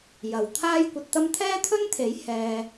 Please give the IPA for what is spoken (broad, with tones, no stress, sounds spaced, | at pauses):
j ɐ˨ w t̪ʰ aː˥ j kʷ ɐ˧ t̚ t̪ ɐ˥ m t̪ʰ ɛː˥ t̪ʰ ɵ˥ n t̪ʰ e˨˥ j h ɛː˧